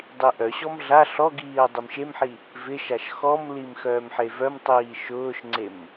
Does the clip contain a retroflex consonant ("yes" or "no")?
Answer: no